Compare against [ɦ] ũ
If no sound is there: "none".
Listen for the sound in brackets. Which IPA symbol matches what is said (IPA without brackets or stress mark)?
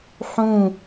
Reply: ħ